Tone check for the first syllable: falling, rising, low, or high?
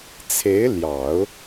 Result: rising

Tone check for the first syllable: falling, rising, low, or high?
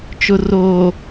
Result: low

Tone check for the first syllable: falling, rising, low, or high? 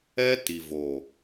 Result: high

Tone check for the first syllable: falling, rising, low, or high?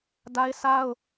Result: high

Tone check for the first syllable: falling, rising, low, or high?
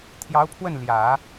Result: rising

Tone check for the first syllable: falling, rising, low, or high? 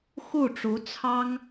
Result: falling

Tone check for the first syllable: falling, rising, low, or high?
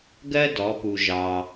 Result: high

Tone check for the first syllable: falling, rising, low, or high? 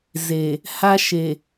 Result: low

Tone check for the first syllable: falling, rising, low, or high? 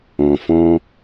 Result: low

